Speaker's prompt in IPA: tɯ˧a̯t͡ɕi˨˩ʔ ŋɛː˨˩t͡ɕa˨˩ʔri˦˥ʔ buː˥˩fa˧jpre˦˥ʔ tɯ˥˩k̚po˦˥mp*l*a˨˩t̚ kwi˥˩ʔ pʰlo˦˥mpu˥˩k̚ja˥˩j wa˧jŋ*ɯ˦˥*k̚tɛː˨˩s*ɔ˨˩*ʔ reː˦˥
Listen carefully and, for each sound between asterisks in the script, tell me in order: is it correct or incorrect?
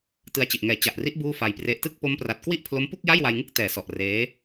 incorrect: r, incorrect: ɯ˥˩, correct

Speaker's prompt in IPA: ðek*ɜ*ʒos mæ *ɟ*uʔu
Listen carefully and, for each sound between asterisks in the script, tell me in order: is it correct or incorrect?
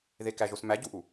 incorrect: æ, correct

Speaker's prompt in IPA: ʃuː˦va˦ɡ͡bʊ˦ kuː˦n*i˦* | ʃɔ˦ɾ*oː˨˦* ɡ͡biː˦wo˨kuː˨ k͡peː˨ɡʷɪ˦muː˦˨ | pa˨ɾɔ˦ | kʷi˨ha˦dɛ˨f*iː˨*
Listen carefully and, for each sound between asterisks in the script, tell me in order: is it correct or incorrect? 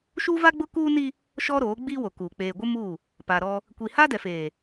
correct, correct, incorrect: eː˨

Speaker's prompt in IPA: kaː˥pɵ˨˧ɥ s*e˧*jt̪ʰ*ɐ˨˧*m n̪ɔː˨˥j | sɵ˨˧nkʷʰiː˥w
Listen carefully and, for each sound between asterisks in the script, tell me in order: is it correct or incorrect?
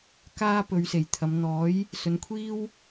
incorrect: e˨˩, correct

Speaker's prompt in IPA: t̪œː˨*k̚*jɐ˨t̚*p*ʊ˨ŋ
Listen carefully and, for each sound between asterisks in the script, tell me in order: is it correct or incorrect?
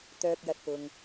correct, correct

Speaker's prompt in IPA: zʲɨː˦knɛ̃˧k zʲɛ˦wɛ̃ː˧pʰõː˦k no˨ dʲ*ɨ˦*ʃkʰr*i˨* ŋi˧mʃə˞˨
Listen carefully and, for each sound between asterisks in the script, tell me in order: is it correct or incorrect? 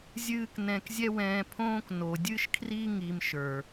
correct, incorrect: i˦

